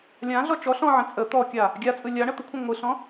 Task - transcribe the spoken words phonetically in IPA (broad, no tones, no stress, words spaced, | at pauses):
lʲãɮɔ t͡ʃɔ ɬɔ̃ʕə̃ t͡sʼə t̪ɔkʲa | ɡʲat͡sʼɯ lʲa ɳət̪əkʷʰə̃ ŋʷɯɬɔ̃